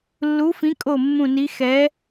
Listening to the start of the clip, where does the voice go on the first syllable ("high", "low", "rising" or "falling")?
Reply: rising